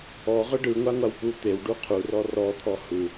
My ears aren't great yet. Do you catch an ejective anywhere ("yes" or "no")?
no